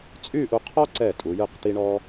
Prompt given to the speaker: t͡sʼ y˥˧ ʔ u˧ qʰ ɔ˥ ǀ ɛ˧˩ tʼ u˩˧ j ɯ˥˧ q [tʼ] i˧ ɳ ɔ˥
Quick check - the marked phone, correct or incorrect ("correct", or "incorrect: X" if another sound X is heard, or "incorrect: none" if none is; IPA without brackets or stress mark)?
incorrect: t̪